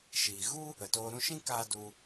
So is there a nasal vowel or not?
yes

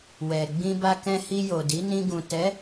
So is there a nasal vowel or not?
yes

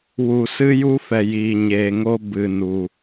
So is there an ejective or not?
no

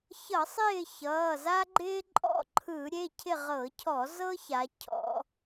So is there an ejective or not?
yes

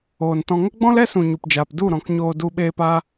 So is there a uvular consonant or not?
no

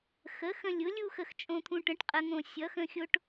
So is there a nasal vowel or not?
yes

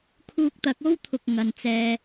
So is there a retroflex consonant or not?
no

